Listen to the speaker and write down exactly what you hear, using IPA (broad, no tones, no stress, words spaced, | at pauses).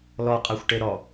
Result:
lɔqʼaxʷʈe ɾɔ